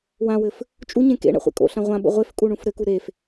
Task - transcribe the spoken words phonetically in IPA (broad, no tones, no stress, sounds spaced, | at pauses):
w ã w ɘ f | t͡ʃʼ u ɲ ẽ k ḛ ɳ a̰ χʷ ḛ kʼ o̰ ɬ ã ʁʷ ã ɓ ṵ ʁʷ e f kʼ u ɳ ũ f ɾ ɘ k u ɾ e f